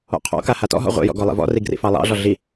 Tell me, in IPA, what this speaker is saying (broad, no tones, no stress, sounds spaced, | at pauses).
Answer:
ɔ̰ qʰ ɔ̰ k a h a t ɔ̰ ɦ ɔ̰ ʁʷ ḭ j ɔ̰ ɡ ɔ lˠ ḭ v ɔ̰ r i ɡ r ḭ f ɑ lˠ ɑ̰ ɮ ɔ ɮ i